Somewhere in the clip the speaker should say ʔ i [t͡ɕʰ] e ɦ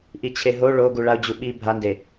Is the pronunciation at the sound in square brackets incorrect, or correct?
correct